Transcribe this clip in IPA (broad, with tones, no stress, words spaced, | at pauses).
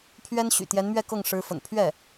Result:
pʰɥɛ˥nɕy̰˨˩ t̪jɛ˧˥nmɥɛ˥˧kɤ˥˩ŋ ʂɻ̩˧˥fə̰˨˩n pʰɥɛ˥˩